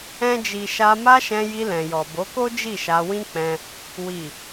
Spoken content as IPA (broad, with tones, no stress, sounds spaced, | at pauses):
ɛ̃˦ d͡ʒ i˧ ʃ a˧ m a˦ ʃ ɛ̃˧ j i˧ l ɛ̃˨ j ɔ˨ b o˨˦ k o˦ d͡ʒ i˦˨ ʃ a˧ w ĩ˦ k͡p ɛ̃˧ | w i˨